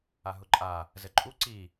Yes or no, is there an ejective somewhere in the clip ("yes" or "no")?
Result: yes